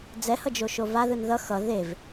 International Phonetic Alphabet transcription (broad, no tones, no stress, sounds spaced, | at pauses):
d͡z ɛ h ʌ d͡ʒ o ʃ o v a ð ɯ n ð ʌ x ʌ ð e v